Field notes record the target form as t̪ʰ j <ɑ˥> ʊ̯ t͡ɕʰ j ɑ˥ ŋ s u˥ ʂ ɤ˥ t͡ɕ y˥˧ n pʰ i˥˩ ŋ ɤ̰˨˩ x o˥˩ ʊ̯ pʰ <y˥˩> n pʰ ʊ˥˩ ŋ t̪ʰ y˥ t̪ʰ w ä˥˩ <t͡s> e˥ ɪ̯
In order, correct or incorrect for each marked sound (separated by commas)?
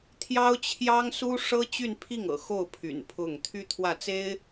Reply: correct, incorrect, correct